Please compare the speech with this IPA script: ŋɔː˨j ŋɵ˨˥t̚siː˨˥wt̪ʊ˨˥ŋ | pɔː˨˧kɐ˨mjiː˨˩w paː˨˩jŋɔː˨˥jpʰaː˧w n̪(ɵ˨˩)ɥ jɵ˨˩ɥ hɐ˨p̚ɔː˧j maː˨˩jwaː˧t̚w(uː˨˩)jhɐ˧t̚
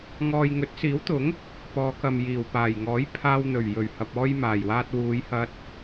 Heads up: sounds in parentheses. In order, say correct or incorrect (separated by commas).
correct, incorrect